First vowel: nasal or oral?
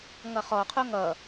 oral